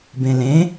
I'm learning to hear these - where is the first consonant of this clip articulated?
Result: lips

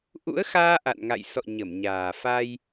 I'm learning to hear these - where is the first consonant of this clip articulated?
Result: throat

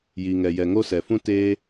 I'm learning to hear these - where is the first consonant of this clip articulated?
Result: palate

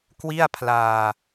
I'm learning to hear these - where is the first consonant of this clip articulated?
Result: velum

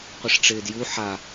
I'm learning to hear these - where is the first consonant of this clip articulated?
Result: uvula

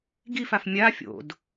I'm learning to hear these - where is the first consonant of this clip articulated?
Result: velum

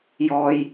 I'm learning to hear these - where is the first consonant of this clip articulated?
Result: palate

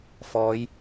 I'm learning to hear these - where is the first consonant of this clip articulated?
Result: lips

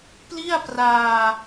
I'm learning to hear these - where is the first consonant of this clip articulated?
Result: lips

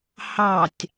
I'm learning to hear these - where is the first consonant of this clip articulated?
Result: throat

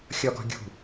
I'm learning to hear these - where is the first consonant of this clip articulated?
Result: velum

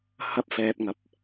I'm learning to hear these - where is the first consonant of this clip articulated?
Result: throat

